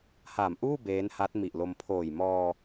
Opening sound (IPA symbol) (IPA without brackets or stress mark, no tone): h